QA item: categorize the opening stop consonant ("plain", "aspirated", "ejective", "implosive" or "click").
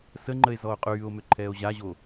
click